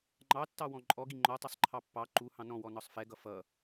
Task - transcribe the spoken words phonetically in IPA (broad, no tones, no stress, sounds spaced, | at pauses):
ŋ͡ǃ ɑ tː ɑ w ɔ̃ ǃʼ ɔ ɡ i ŋ͡ǃ ɔ tˤ ʌ sˤ ǃʰ ɑ pː ɑ ǃ u h ɑ̃ n ɔ̃ w ɔ n ɒ sˤ f ɛ ɡ ʌ f ʌ